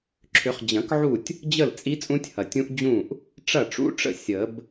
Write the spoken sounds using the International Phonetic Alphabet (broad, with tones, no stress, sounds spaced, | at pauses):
ǁʰ ʏ˨˩˦ χ d͡ʑ ɐ̃˨˩˦ k ʕ u˥˩ tʲ | d͡ʑ ə˥˩ l t͡sʼ i˦˥ t͡sʼ ũ˦˥ tʲ h ɐ˩ tʲ ũ˦˥ ʔ d͡ʑ ũ˥˩ ʔ | ʈ͡ʂ ɐ˥˩ ʈ͡ʂ ṵ˦˥ ʈ͡ʂ ə̰˥˩ sʲ ə˨˩˦ b